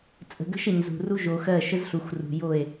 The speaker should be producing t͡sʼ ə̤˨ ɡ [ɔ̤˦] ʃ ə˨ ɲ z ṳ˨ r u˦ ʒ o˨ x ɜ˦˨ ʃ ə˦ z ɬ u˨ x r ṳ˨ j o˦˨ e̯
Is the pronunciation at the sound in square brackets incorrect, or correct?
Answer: incorrect